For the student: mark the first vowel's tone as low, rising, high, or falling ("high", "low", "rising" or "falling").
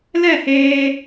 falling